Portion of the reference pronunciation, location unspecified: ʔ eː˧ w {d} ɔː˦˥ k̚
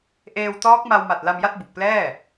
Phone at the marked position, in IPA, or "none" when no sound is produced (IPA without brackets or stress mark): t